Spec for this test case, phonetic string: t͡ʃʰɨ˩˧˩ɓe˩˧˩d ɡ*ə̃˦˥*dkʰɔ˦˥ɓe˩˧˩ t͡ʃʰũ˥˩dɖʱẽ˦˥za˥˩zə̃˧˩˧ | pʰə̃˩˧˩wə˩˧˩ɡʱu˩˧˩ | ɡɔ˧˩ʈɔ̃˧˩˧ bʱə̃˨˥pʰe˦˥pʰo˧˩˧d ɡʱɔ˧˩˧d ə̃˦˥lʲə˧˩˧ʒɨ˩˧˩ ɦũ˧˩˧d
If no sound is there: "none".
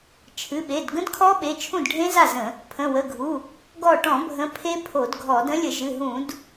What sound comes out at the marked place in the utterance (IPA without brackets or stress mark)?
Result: ə̃˦˥